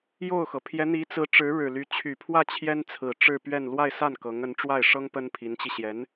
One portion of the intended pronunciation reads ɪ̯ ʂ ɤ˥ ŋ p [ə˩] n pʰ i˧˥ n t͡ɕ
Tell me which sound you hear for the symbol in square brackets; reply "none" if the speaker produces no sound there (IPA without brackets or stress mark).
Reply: ə˥